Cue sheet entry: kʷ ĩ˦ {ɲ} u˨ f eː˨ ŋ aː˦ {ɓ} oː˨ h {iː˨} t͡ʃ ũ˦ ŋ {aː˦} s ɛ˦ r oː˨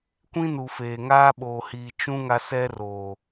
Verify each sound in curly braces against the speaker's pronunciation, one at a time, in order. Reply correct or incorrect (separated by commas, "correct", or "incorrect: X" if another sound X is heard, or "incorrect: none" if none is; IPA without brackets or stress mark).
incorrect: n, correct, correct, incorrect: a˦